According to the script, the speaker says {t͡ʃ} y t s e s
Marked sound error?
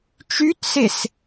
no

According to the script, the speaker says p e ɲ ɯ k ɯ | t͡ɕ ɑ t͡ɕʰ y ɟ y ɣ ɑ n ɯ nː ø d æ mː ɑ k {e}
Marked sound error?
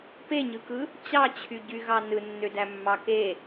no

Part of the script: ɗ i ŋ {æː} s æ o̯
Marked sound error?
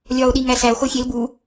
yes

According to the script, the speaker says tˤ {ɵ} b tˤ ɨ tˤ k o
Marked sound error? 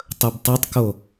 no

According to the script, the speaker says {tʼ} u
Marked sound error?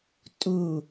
no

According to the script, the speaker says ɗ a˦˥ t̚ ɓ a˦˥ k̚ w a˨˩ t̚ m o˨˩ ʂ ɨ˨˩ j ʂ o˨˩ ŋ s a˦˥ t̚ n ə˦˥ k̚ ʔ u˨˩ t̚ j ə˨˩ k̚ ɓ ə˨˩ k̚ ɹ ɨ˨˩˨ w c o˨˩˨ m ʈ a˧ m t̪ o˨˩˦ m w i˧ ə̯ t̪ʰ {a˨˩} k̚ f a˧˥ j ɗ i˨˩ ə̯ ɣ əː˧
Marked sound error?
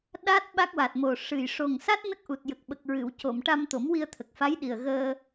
yes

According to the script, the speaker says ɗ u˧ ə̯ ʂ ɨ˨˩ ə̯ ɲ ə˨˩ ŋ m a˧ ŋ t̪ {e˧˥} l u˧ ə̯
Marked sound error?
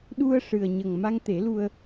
yes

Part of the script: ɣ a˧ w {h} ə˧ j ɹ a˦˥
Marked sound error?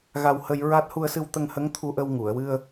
no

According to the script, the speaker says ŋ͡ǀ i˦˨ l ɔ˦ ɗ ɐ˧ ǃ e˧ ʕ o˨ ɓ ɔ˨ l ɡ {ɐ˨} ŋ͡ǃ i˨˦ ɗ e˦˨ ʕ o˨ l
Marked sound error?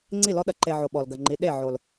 no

